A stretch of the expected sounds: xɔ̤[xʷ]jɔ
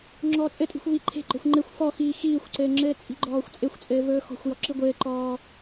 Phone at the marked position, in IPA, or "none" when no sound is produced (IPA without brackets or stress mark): xʷ